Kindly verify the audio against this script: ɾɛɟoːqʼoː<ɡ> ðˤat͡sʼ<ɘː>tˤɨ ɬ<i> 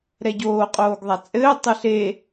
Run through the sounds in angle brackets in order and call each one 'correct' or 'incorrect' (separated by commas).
correct, correct, incorrect